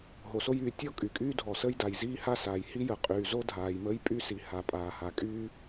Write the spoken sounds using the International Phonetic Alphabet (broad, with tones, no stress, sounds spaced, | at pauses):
ɦ o˩ s o˥ j yː˩ tʲ ɔ˥ kʼ y˩ kʼ yː˥ dʱ ɔ˩ s əː˥ j d a˩ j z iː˥ h a˥ s aː˩ j h i˥ j ə˩ qʼ yː˩ z o˥ dʱ aː˩ j m əː˥ j pʼ y˥ s i˩ h a˩ pʼ aː˩ h a˩ kʼ yː˥